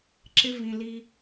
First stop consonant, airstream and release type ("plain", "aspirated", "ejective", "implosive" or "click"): click